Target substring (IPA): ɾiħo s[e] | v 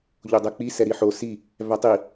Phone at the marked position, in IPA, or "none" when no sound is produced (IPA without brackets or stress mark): i